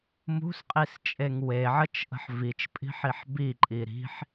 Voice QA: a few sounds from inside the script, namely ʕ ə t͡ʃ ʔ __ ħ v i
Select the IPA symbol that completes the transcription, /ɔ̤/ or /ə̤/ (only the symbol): ə̤